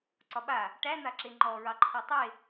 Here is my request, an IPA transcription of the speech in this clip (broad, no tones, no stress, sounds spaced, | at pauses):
ǀ ɒ ɓ a | ʈ æ n̪ a ǁ e ŋ͡ǃ ɔ ɹ ɑ ǃʰ ɔ tˤ e